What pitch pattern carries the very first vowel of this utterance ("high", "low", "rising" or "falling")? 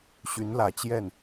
rising